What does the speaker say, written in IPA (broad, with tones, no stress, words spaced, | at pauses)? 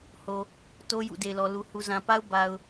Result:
ho˨ | to˦ jṵ˦˨de˨ɪ̯lɔ˨ lu˨ hu˨zã˨pa˦ʊ̯ ba˨ʊ̯